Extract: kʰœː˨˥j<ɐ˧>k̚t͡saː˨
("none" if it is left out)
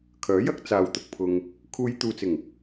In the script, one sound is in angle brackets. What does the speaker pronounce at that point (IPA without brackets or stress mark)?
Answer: ɐ˥